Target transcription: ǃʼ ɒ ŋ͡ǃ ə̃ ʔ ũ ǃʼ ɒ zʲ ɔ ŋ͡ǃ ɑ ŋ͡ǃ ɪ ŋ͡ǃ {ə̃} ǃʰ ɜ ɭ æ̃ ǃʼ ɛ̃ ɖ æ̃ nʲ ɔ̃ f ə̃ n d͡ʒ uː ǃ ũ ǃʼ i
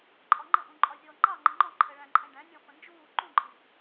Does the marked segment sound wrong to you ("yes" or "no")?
yes